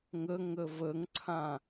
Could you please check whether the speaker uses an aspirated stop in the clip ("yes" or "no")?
yes